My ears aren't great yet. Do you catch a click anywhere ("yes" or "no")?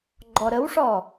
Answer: yes